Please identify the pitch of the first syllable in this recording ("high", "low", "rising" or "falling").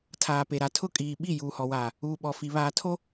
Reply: low